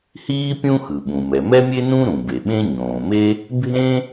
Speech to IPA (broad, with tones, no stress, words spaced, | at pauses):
hiː˥ pʲũ˥xɯ˩ɓũ˩ mɛ˩mɛ˥mʲe˥ nũ˥ɾũ˩ be˩ ɓẽ˥ ɲõː˩me˥ | bʱẽ˥